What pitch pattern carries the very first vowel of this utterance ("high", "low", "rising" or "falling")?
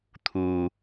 low